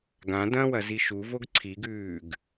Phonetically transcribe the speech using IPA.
ɡ ã d ɐ̃ w ɐ z i ʃ u v o ɡ ǀʰ i ɡ ʉː ɡ

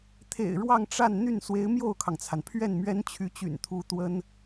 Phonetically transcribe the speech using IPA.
t̪ʰ ḛ˨˩ ɪ̯ ɻ w ɑ˥˧ ŋ ʈ͡ʂ a˥˧ n n̪ y˥˩ n s w e˧˥ ɪ̯ m j o˥˩ ʊ̯ kʰ ɑ˩ ŋ t͡sʰ a˩ n pʰ ɥ ɛ˥˩ n m ɥ ɛ˥ n t͡ɕʰ y˧˥ t͡ɕ y̰˨˩ n t̪ʰ u˧˥ t̪ w ə˥ n

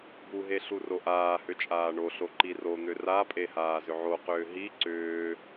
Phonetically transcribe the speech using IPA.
b u ɦ e ɬ u r o ʔ aː h ʏ t͡ʃʼ aː ɳ o ɬ o ǃ i r o n̪ ʏ r a pʼ e h aː z ʏ ʕ o q ʏː ɦ i ǀ ʏː

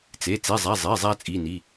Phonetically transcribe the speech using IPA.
t͡s e˩˧˩ t͡s e˩˧˩ zˤ æ˩˧˩ zˤ e˩˧˩ zˤ æ˧ t͡sʼ i˩˧˩ n i˩˧˩

